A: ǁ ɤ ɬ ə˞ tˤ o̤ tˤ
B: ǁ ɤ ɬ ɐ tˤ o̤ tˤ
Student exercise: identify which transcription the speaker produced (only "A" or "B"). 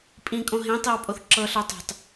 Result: A